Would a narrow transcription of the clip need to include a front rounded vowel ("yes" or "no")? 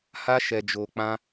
no